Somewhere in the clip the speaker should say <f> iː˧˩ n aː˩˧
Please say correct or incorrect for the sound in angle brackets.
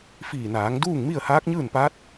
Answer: correct